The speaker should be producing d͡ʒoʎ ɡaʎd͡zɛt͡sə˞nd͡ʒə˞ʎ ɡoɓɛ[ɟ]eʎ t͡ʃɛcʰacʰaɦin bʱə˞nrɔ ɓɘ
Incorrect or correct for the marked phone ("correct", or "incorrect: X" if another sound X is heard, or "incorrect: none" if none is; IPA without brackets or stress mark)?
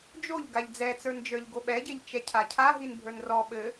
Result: correct